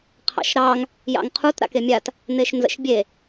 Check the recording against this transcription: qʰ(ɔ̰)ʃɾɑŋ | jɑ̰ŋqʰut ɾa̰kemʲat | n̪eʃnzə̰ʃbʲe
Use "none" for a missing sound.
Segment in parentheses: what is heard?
ɑ̰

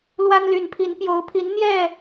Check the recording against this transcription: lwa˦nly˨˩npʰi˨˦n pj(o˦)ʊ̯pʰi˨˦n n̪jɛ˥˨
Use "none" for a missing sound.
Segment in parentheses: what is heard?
o˨˦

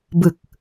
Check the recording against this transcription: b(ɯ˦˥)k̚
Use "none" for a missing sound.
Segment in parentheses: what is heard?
ɯ˨˩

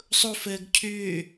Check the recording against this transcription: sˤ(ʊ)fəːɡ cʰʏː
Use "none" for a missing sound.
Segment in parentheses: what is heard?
ʊ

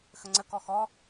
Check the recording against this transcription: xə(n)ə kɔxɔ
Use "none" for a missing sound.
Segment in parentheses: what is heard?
ŋ͡ǀ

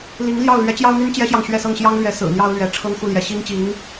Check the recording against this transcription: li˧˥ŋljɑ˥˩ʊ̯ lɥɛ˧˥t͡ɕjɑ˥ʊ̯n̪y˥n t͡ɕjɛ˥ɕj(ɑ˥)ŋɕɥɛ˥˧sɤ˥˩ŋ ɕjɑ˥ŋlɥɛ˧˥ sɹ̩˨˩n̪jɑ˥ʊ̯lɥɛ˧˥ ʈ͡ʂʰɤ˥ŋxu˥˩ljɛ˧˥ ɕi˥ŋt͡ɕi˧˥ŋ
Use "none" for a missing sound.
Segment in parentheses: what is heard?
ɑ˨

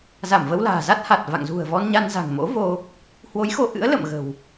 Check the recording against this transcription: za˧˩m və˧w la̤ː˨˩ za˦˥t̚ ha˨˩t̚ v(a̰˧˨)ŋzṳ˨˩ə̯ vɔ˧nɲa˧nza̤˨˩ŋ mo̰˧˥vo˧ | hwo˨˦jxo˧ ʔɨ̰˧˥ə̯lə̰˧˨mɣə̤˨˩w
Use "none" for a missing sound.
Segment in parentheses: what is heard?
a̰˧˨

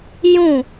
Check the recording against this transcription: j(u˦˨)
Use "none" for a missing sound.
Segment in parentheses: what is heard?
ũ˦˨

